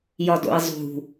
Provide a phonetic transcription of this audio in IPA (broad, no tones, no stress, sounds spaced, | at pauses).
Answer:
j ɒ d o̰ i̯ zˤ ṳ